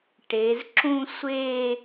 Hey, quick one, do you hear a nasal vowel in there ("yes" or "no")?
yes